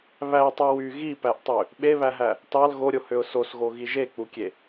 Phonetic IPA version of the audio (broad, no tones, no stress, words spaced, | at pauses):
βætˤy wy ɣipæʔtˤø | ɓeβæɦæ | tɑl ɣoɾʲohøʊ̯ sosɣoɣi ʒek͡pukʲe